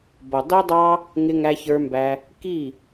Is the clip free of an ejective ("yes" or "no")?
yes